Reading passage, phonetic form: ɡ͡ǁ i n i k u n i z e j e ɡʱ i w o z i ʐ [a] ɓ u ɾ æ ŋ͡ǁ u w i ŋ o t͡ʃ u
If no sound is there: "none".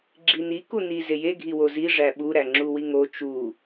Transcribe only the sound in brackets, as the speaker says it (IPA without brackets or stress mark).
æ